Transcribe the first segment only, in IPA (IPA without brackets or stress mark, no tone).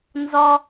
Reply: n